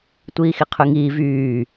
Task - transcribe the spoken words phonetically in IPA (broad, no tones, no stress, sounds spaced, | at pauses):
tʷ iː x i qʰ y ŋ iː v yː